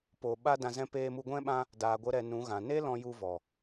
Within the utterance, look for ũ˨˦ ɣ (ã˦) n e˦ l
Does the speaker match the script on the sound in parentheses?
no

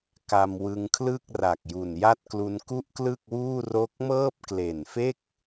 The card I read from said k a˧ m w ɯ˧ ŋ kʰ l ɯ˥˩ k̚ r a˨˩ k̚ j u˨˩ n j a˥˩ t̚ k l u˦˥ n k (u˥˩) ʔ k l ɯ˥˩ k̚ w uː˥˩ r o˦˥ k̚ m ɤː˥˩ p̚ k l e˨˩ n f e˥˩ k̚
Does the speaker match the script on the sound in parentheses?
yes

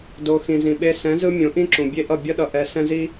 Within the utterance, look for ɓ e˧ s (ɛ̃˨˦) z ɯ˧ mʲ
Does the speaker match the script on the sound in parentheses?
yes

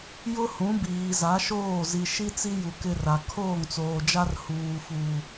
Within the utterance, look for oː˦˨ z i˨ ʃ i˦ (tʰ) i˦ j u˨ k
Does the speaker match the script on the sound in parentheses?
no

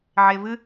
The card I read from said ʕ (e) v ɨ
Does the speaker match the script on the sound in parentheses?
yes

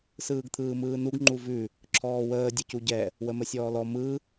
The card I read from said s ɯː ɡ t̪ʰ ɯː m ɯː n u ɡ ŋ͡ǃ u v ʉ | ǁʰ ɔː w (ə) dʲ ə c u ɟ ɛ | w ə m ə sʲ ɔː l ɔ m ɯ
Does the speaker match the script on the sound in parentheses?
no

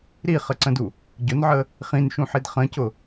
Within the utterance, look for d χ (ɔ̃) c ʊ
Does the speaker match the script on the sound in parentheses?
no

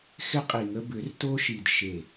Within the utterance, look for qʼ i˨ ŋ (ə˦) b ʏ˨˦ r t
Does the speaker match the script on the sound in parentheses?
yes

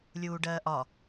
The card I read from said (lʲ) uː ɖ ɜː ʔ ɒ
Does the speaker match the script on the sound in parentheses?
yes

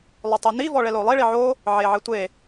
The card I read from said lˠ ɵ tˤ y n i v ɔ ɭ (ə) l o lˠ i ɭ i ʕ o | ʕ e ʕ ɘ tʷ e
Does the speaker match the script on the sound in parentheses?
no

